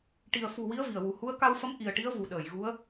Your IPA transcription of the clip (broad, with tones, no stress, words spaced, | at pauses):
ʈi˨˩ə̯fu˨˩ wi˧˥ə̯ vi˨˩ə̯wu˨˩ hu˧˥ə̯ ka˧wfə˧˥m ʔi˨˩ə̯ʈi˧˥ə̯ vu˨˩ɗəː˨˩˨j ɣu˧˥ə̯